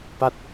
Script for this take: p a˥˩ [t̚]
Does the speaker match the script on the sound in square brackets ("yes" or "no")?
yes